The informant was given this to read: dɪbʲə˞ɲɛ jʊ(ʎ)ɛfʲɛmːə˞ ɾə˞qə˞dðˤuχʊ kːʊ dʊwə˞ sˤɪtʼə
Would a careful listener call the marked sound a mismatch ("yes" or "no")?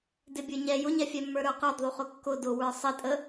yes